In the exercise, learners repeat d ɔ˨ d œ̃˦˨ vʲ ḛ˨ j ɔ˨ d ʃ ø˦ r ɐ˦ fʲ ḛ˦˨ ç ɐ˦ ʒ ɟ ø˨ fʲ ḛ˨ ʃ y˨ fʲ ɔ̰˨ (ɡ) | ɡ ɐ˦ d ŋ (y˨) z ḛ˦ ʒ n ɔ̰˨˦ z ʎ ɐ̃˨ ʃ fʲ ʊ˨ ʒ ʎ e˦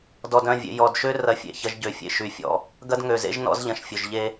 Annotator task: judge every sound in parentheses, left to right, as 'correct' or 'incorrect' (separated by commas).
incorrect, incorrect